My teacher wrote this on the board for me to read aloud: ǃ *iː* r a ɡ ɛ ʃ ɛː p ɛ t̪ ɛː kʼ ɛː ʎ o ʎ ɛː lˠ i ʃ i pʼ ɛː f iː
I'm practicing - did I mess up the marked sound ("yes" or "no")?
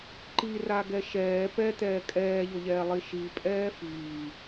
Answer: yes